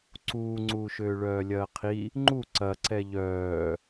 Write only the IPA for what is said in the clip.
ǀ uː ŋ͡ǀ uː ʃ øː ɭ œː lʲ ɐː qʰ i | ŋ͡ǃ u ǀ ɐ ǀ ɛ ʎ œː

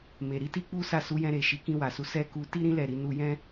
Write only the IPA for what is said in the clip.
m e˨ ɾ i˨˦ t i˦ k͡p u˦ s a˦˨ s u˨˦ j ɛ̃˧ ɾ e˨ ʃ i˨˦ k ĩ˧ w a˨ s u˨˦ s ɛ˦ k u˧ t i˦ ɾ ĩ˦ l ɛ˦˨ ɾ i˨˦ n u˧ j ɛ̃˦

